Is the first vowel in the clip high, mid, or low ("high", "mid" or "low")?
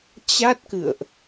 low